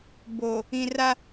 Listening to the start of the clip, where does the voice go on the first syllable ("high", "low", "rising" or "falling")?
low